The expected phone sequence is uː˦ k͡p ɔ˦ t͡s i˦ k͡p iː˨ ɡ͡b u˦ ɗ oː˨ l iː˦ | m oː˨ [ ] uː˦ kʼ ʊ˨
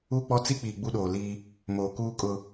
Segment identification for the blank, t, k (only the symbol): k